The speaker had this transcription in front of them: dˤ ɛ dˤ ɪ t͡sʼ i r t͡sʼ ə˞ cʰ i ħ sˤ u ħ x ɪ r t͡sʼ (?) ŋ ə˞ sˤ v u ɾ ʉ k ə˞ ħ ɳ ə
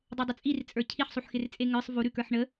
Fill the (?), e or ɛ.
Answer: e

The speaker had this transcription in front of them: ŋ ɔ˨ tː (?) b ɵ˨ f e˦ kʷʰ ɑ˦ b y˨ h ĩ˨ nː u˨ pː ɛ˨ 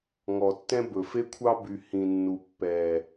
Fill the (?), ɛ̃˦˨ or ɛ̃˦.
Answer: ɛ̃˦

